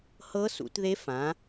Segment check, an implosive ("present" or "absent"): absent